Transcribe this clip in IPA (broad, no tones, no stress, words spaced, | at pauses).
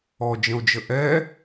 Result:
ɔd͡ʒə̃o̯d͡ʒə ʔɛ